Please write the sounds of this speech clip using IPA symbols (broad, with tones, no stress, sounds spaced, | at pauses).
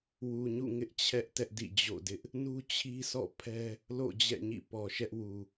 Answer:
w u˨ ɲ ṵ˦˨ ŋ ɪ˦ ʔ t͡ɕʰ ɛ˦ ʔ t ɛ˦ ʔ d ḭ˦˨ d͡ʑ o̰˦˨ d ɪ˦ ʔ | n u˦ t͡ɕʰ i˦ sʰ ɔ̰˦˨ pʰ ɛ˦ | l o̰˦˨ d͡ʑ ɛ̰˦˨ ɲ ḭ˦˨ p ɔ˨ ʃ ɛ˦ ʔ w u˨